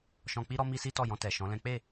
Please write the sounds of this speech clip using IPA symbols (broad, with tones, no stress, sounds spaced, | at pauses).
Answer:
ʃ ɔ̃˧ k͡p i˦ ɾ ɔ˦ m i˦ s i˦ t ɔ˦˨ j ɔ̃˧ t ɛ˨ ʃ ɔ̃˨˦ l ɛ̃˦ k͡p e˦˨